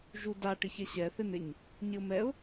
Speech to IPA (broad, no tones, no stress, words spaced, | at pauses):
ʒuda ʈɪçɛɕɛ θɪn̪ɪɲ | ɲɪʊ̯mɛʊ̯